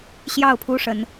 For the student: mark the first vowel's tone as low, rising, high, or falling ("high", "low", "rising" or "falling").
falling